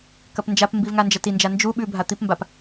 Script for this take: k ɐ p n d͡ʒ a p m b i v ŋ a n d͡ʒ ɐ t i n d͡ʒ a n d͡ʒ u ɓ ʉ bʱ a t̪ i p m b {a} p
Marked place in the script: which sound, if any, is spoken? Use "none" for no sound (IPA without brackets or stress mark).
a